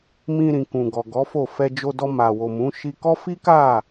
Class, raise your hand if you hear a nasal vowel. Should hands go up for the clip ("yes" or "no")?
yes